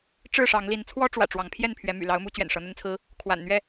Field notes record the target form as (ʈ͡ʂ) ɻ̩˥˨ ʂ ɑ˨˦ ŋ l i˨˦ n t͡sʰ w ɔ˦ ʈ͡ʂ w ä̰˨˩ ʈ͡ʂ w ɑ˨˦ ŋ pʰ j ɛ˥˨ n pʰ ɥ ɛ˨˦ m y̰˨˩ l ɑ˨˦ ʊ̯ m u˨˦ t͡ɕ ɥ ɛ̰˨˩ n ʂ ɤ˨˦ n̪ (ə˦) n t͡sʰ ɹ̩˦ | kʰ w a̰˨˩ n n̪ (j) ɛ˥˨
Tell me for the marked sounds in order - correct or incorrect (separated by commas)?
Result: correct, correct, incorrect